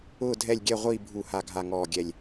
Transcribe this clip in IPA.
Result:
ʊː˥˨ dʱ ɛ˥˨ lʲ ɡʲ ɛ˥˨ ʁʷ iː˥˨ bʱ u˧˩˧ h a˨˩ ɡʱ a˨˩ ŋ ɔː˨˩ ɡʲ ɛ˨˩ lʲ

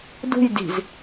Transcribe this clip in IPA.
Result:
d ṳ j d i̤ z

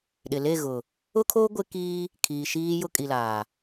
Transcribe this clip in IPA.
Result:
ɗ ɪ˨ l e˦˨ ɣ ʊ˨ | ʊ˦ kʰ o˦ ɡʷ ɪ˦ k i˦ | kʰ iː˨ ʃ iː˦ j ʊ˦ kʼ i˨ l aː˨

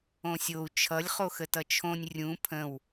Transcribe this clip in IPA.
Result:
õ sʲ o u̯ t͡ʃʰ ʌ lʲ χ o x ə t ʌ t͡ʃʰ õ nʲ rʲ ũ pʰ ə̃ w

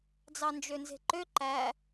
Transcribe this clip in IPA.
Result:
d͡z ɑ n d͡ʒ ø n z e̤ ǃ ø ǃ æ

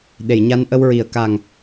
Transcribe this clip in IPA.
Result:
ɗ e˨˩˨ j ɲ a˧˥ n ʔ ə˧ w ɹ i˨˩˦ ə̯ k a˨˩ ŋ

